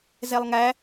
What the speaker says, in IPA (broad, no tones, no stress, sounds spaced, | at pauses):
z ɛ lˠ ŋ æ